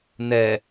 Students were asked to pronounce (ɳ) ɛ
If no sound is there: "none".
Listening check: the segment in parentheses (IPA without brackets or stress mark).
n̪